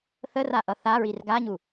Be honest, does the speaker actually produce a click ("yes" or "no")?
no